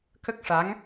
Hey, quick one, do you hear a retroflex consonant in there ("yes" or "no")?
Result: yes